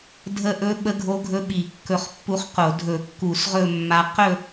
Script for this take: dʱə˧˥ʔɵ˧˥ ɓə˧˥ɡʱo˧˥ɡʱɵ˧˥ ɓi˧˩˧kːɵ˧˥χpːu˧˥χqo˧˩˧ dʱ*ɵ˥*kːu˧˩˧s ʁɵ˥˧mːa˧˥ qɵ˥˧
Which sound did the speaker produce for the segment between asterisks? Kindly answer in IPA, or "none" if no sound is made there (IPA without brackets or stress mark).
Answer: ɵ˧˩˧